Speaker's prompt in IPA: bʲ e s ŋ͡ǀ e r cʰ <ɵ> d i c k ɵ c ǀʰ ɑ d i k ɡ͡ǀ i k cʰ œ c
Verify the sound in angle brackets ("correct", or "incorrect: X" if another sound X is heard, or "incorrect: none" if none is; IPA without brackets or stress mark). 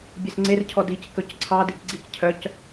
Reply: incorrect: ɔ